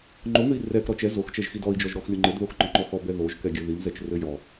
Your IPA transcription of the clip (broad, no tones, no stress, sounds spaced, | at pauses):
ŋ͡ǃ o ŋ ɘ i̯ r ɛ k ɾ ɔ t͡ʃ ɛ z o x t͡ʃ ɛ ʒ x i d ɔ i̯ d͡ʒ ɔ ʒ ɾ ɔ x lʲ o ŋ͡ǃ ɘ d ð o x ŋ͡ǃ ɔ ŋ͡ǃ ɔ x ɔ b ɛ ð o ʒ k ɛ ɡʲ ɘ ð i m z ɛ t͡ʃ r ɘ j ɔ